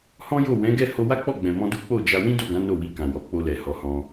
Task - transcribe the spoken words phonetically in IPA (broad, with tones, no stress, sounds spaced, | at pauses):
h ɔ̃˦ j o˦˨ w ɛ̃˨˦ ɡ ɛ˦˨ h o˧ w a˦ k͡p ɔ˦˨ ɡ͡b ɛ̃˨ m ɔ̃˧ d u˦ k͡p o˦˨ d͡ʒ a˧ w ĩ˦ d o˦˨ ɡ ã˨˦ n o˦˨ w i˧ k ã˨ w ɔ˨˦ k͡p o˧ l ɛ˨ h ɔ˨˦ h ɔ̃˧